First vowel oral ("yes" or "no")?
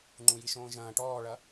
no